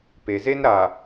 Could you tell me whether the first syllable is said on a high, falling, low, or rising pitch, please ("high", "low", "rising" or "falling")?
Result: low